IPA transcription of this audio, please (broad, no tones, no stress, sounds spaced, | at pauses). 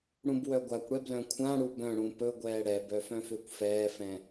ɽ ũ b w œ ɡʷ a kʷ ɽ ɛ b l œ̃ kʷʰ ã ɽ u b œ̃ ɽ ũ p ɵ ɡʷ ɛː ɽ ɛ b œ f œ̃ f ʏː kʷ f ɛː f ɛ̃